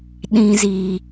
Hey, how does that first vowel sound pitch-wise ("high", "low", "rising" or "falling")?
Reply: high